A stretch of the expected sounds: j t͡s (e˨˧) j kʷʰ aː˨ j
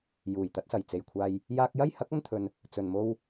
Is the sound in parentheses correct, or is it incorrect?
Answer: incorrect